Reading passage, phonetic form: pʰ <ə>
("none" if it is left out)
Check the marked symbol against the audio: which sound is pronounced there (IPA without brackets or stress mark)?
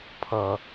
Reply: ʌ